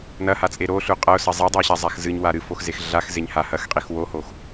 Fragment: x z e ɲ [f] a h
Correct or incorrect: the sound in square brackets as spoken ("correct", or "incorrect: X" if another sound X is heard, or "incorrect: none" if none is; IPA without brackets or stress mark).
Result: incorrect: h